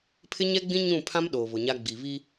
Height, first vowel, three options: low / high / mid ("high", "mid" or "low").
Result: high